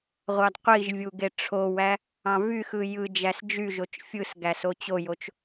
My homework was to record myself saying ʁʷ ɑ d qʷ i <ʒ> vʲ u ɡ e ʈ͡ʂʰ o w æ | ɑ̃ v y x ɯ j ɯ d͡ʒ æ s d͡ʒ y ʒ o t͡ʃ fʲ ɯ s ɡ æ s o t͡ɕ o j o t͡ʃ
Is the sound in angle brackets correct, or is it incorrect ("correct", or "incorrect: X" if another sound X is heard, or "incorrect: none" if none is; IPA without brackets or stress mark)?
correct